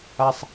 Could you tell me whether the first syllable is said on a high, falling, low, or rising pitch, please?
high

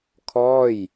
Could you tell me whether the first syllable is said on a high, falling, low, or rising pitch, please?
falling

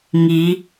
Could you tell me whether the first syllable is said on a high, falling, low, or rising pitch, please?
rising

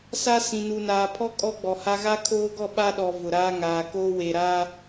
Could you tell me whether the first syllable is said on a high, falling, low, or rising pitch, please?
high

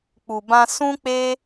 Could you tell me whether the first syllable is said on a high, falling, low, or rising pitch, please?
low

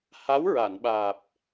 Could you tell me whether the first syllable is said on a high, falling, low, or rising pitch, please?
rising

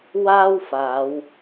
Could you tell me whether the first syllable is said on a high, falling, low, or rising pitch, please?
high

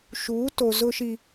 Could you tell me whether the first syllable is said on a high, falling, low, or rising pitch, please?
rising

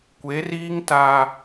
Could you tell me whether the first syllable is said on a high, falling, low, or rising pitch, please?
rising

